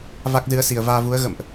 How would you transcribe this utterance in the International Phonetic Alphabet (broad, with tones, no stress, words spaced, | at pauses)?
va˦˥k̚zɨ˨˦ə̯ si˨˩ə̯vaː˧vu˨˦ə̯ ɣə̰˧˨mʔ